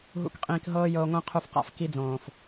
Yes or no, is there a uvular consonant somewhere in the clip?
yes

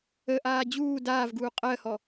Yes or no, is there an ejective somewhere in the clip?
yes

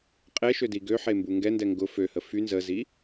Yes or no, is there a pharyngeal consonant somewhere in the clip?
yes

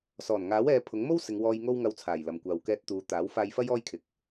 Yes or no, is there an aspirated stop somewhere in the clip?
yes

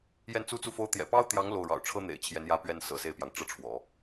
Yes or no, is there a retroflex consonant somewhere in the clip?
yes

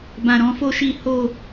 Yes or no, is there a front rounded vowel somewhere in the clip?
no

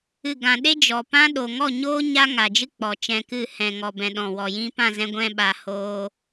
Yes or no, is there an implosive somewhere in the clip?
yes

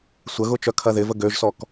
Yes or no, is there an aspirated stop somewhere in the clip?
yes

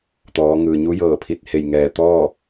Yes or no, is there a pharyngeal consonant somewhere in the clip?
no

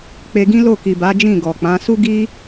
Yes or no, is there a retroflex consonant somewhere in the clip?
no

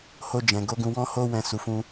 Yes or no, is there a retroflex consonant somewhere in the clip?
no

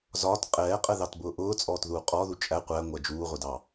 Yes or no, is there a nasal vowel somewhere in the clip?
no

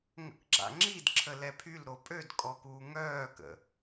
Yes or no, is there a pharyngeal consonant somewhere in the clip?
no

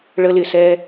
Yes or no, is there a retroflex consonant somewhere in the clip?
yes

